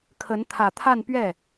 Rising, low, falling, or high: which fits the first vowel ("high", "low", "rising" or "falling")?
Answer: rising